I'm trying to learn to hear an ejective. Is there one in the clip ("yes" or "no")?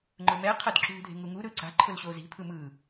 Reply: no